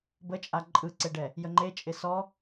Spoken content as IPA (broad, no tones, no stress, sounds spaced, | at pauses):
b ə t͡ʃʼ a ǃʼ ɯ ǀ e ɖ ɛ | j ə ŋ͡ǃ e t͡ʃʼ ɪ s ɔ